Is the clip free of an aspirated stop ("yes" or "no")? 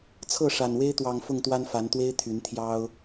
no